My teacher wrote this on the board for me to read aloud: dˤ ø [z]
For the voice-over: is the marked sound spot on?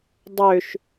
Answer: no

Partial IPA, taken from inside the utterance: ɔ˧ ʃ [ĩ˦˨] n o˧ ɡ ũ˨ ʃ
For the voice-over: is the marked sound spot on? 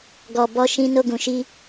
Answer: no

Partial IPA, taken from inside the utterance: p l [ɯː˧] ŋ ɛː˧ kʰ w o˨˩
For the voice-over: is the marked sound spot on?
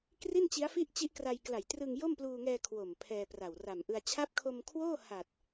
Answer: no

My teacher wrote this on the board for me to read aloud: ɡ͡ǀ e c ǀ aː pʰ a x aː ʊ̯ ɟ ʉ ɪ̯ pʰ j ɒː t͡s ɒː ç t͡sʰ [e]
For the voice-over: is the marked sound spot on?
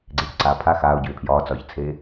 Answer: no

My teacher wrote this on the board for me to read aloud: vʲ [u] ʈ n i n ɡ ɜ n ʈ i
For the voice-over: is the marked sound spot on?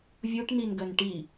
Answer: yes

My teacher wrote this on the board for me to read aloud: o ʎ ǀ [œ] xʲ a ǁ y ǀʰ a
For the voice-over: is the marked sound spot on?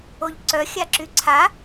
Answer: yes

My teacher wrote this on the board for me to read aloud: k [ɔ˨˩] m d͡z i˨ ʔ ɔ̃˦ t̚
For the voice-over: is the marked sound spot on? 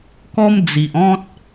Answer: no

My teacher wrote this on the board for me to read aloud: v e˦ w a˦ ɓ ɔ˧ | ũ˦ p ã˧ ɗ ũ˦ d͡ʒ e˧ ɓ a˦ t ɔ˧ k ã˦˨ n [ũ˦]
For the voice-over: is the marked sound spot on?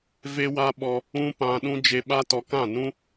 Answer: yes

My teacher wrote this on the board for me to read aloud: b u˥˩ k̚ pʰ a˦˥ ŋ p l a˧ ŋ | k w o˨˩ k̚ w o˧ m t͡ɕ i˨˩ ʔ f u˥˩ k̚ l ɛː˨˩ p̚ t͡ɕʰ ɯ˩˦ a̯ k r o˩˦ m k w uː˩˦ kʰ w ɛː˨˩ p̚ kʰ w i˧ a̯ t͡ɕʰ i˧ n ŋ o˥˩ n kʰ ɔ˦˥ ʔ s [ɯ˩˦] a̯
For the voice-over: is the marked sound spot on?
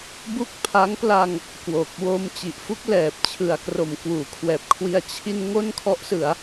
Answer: yes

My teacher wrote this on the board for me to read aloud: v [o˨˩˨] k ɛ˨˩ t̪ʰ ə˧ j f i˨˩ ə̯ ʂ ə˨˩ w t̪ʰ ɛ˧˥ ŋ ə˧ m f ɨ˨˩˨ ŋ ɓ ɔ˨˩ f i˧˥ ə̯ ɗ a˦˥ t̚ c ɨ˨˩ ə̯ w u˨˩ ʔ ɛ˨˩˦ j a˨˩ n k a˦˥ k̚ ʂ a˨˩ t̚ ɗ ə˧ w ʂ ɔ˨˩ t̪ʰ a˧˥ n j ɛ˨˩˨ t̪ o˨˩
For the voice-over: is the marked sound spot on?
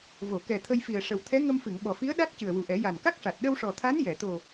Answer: yes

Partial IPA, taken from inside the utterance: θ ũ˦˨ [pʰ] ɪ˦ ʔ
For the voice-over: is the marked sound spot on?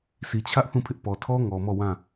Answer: yes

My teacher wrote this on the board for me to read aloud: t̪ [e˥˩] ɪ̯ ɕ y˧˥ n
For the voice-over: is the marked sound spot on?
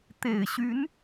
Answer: no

